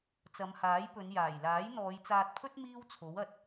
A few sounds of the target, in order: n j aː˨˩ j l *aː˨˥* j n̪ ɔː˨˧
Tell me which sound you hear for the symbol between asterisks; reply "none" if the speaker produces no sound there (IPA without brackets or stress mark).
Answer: aː˨˥